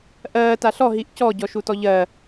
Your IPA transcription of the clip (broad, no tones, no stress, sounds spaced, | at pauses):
ʔ ɜː t a ɬ ɔ ɦ i ʔ c ɔ ɟ ɔ ʃ u t ɔ ʎ ɜ